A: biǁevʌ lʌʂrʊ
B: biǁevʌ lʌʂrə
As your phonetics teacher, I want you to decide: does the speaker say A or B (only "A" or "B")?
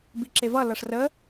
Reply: B